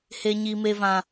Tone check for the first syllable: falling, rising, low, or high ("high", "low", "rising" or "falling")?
high